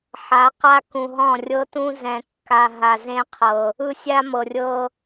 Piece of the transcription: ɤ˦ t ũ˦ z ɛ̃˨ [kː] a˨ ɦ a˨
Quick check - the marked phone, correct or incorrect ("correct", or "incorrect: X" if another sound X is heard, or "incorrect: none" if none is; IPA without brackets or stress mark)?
correct